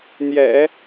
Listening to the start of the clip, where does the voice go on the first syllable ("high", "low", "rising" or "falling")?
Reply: low